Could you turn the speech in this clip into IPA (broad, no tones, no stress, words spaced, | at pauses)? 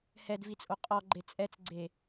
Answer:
hɛdvit͡sʼo qʼɔɡ͡ǃe t͡sʼɛt͡sɡ͡ǀe